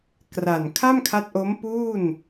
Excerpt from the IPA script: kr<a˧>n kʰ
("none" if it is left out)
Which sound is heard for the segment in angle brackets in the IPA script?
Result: a˨˩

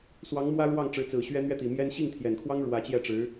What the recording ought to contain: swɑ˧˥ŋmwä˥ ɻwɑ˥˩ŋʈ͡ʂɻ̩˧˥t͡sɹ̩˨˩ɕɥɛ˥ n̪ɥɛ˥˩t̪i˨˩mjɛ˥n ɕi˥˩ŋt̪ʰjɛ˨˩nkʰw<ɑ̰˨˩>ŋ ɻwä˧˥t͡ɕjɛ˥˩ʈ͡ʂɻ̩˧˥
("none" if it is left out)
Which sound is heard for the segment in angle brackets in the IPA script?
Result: ɑ˥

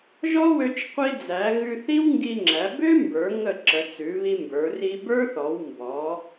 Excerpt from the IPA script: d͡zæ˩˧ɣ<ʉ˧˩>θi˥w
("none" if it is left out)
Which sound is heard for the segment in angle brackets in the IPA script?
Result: ʉ˧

